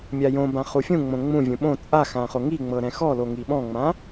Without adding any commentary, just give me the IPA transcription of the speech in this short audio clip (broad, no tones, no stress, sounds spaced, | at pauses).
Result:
mʲ a j õ b ã χ u fʲ ũ ŋ͡m õ ŋ͡m ũ vʲ ũ ɓ õ t͡sʼ a x ã χ o ŋ i ŋ͡m ɤ ɾ ɛ̃ x ɔ l o ŋ i ɓ ɔ̃ ŋ͡m ã